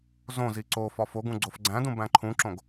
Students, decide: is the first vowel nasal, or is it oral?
nasal